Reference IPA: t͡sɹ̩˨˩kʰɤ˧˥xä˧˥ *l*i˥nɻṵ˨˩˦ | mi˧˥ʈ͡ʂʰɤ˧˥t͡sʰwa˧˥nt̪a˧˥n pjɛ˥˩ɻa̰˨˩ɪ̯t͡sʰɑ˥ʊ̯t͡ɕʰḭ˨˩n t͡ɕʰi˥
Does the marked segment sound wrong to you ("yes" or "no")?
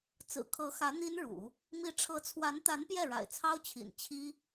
yes